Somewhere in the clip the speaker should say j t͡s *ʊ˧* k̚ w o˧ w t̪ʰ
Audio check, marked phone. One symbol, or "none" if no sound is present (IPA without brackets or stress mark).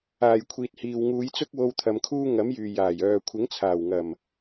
ʊ˥